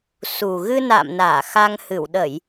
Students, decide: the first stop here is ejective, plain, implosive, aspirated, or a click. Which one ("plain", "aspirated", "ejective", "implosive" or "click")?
implosive